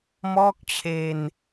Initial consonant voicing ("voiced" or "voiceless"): voiced